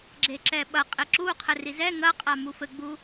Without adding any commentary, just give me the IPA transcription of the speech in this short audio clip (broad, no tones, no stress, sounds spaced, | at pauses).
ɡ͡ǁ e ǁ ɛ ɓ ɐ qʼ e ǁ u qʰ ɘ r i z ɛ ŋ ɐ qʼ a m u f ɘ ɡ͡b u